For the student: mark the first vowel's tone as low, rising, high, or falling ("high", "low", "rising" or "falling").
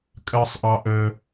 high